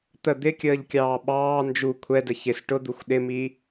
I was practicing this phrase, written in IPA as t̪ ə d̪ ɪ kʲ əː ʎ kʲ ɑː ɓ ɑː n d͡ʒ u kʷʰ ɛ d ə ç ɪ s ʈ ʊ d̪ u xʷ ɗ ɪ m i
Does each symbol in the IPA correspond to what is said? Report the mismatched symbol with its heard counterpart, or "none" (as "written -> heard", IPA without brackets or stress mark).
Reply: none